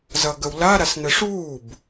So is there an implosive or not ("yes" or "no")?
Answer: no